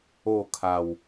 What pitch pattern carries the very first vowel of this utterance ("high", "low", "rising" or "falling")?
falling